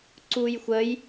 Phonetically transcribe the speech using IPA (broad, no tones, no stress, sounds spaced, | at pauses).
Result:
ǀ u j xʷ ə j